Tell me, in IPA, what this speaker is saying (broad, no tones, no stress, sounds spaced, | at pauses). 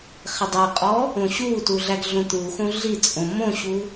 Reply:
χ e dˤ æ qʼ ɔ | õ ɕ u t u ɮ æ ɡ ɮ õ t̪ u x õ ɮ i t͡sʼ õ m õ ɕ u